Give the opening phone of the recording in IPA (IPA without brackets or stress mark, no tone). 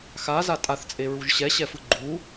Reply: x